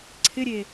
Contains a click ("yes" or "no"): yes